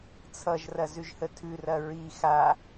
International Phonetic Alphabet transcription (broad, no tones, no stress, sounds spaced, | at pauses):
t͡sʰ ʌ ʒ r ɐ z ʉ ʒ h ə tʰ ʉ r ɐ ɹ i x a